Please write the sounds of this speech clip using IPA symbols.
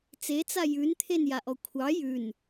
t͡s e t͡s a j ʉ n t̪ʰ e n j a ʔ ɔ kʷʰ ɑ j ʉ n

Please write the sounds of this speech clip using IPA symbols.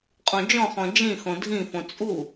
qʼ õ d͡ʒ ɔ̃ χ ɔ̃ d͡ʒ ĩ x õ dʱ ĩ f õ t͡sʼ u

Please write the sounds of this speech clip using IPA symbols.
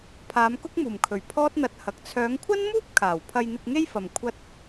pʰ aː˨˧ m k ʊ˥ k̚ m uː˨˩ m kʰ ɵ˨˩ ɥ pʰ ɔː˥ t̚ n̪ ɐ˧ t̚ h ɐ˨ k̚ t͡sʰ œː˨˧ ŋ kʷʰ ɐ˥ n m uː˥ p̚ kʰ aː˨˩ w pʰ ɐ˧ j n̪ ɪ˧ k̚ ŋ e˥ j f ɐ˨ m kʷʰ ɐ˥ t̚

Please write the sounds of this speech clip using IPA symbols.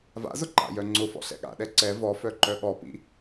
v a̰ z ʊ ǃ a̰ j œ ŋ͡ǀ ʊ f ɔ̰ ɬ ɛ̰ ɠ a̰ ɗ ɛ ǀ ɛ v ɔ f œ ǃ œ ɠ ɔ p ḭ

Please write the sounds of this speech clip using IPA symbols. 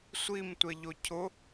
sʷ i m tʷ ɛ ʎ o cʰ ʊ

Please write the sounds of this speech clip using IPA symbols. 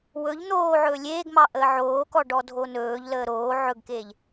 w ɵ ʎ n̪ oː ʕ ɵː lʲ eː ɡ m ɑ ʔ əː ʕ oː k ɔ ɖ ɔ dʱ o n ɵː ʎ l əː ɾ oː ʕ ɵ ɡ k eː ʎ

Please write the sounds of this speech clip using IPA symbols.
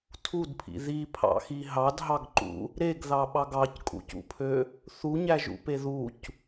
tʰ u d pʰ ḭ ð i pʰ ɑ̰ x i ɦ ɑ d ɦ ɑ ɡ ǃ ṵ | ɾ e ɡ ð ɑ ɓ ɑ ɡ ɑ c kʼ ṵ c ṵ pʰ ø | θ u ɲ æ ʒ ṵ p e ð u c

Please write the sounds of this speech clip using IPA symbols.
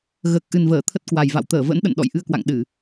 ɣ əː˨˩ k̚ ʔ ɨ˨˩ n v əː˧˩ t̪ʰ ə˦˥ t̚ k w a˨˩ j v a̰˧˨ w t̪ əː˧˩ v ə̰˧˥ n ɗ ə̰˧˨ n ɗ ɔ̰˧˨ j ʔ ɨ˧ ə̯ k w a̰˧˨ ŋ ɗ ɨ˧˩˨

